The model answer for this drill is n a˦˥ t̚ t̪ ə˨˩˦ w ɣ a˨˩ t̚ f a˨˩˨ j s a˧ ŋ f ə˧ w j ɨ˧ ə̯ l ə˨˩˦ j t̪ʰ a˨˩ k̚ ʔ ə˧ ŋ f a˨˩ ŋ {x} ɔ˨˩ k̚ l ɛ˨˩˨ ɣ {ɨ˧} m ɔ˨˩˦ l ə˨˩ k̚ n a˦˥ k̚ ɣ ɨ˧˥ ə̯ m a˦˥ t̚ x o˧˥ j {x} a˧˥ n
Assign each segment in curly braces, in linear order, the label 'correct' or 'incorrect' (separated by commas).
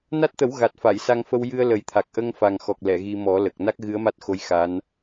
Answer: correct, incorrect, correct